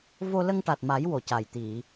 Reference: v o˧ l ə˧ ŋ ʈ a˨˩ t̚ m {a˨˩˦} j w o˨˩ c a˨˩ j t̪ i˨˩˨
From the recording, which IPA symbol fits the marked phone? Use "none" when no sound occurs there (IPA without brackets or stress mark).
a˨˩˦